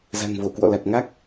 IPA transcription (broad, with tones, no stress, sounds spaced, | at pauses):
z a̤˨˩ ŋ v o˧˩ k w ɔ̰˧˨ l a˨˩ t̚ ŋ a˦˥ k̚